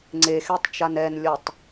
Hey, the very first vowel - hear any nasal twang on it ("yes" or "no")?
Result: no